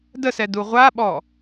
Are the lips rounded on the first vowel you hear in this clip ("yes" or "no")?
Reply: no